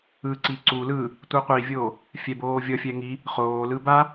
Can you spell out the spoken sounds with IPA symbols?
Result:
ɯ ǀ i ǀ u l ɯ | tʷ ɯ qʷ i vʲ oː | fʲ ɛ b oː vʲ ʌ fʲ ɛ ŋ i | χ oː l ɯ b a

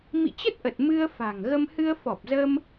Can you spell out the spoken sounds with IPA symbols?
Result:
m ḭ˧˨ t͡ɕ ə˦˥ t̚ ʔ ə˨˩ t̚ m ɨ˧ ə̯ f a̤˨˩ ŋ ɣ ə˧ m h ɨ˧ ə̯ f ɔ˨˩ p̚ z əː˧ m

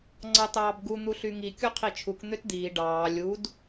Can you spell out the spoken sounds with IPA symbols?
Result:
ŋ͡ǀ ɑ t ɑː b ɡ u n̪ u ɬ y ŋ i kʲ o qʰ i t͡ʃʰ u k n̪ ø t d̪ iː ɖ ɑː lʲ u d

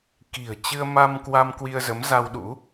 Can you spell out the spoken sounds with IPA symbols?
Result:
k i̤˨˩ ə̯ t͡ɕ ɨ˧ ə̯ m a˧ m k w a˧ m k w i˧ ə̯ z ə˨˦ m z a˧ w ɗ ṵ˧˥

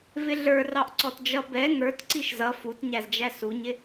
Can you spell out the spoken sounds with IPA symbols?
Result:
v ɪ ɮ ə˞ r ɑ ʔ ǀ ɔ t d͡ʒ ʌ b ɛ ŋ ə˞ t ǀ i ʃ z ʌ f u t ɲ æ z d͡ʒ æ s u ɲ ɪ

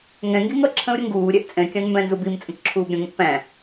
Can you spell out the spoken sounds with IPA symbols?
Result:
ŋ ɛ̃ ŋ ɡ i ŋ ʌ ǁʰ ə̃ ʊ̯ ɾʲ ə ŋ ɡ uː ɾʲ ɛ ʔ t͡sʼ ɛ̃ kʲ ɑ̃ n m b æ̃ n z u b i m t͡sʼ ə̃ k ǁʰ uː b ɾʲ ə̃ ŋ ə̃ ʔ p æ̃

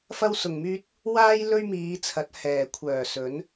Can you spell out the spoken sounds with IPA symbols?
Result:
f ɐ˥ w s ʊ˨ ŋ m yː˥ t̚ | w aː˥ j l ɵ˥ ɥ m iː˨˧ t͡sʰ ɐ˨˥ t̚ h ɛː˨˩ kʷʰ œː˨˩ s ɵ˨˥ n

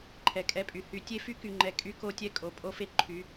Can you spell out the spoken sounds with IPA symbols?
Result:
ǃʰ ɛ˨ kʼ ɛ˦ pʼ y˨ h y˨ tʲ e˦ f y˦ k y˨ ŋ͡ǃ ɛ˨ kʼ y˦ k o˦ tʲ ɛ˦ kʼ o˨ pʼ o˦ f e˦ ǃʰ y˨˦

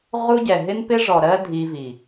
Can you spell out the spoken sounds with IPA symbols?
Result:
ʁ u˦ ɟ ɛ˨ ɦ ɪ˦ n p ɪ˦ ʐ ɔ˨ ɾ ɜ˦ dʱ i˧ v i˨

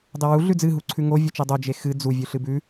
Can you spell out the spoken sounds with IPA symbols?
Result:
dˤ e w u ɮ ʉ d͡z ɨ ɦ u ǀʰ ʉ ŋ o vʲ u t͡ʃ e dˤ o d͡ʒ e x ɨ d͡z u vʲ ʉ ɬ ɨ b ʉ

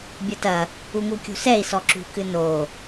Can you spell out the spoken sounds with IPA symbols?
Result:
bʲ ɐ t ɐ | u ŋ u kʲ ṳ s ɛ i̯ s ɔ ǁ ṳ k ɨ n o

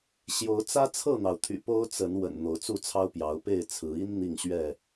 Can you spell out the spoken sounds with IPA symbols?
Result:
ɕ j o˨˦ ʊ̯ t͡s ä˦ t͡sʰ ɤ˥˨ n̪ ɑ˩ ʊ̯ t̪ʰ y̰˨˩ p o˦ ʊ̯ t͡s ə˨˦ n w ə̰˨˩ n n̪ o˨˦ ʊ̯ t͡s u˥˨ t͡sʰ ɑ˦ ʊ̯ p j ɑ˨˦ ʊ̯ p e˥˨ ɪ̯ t͡sʰ ɹ̩˨˦ i˦ n n̪ i˥˨ ŋ ɕ ɥ ɛ˥˨

